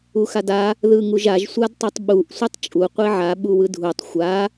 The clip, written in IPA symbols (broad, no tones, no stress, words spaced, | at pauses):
uxada | ðɯŋuʒaʒ sʷadtˤutˤɓuʔ sʷɯtˤt͡ʃʼu qʷiʕa ɓuwɯdʱutˤ xʷa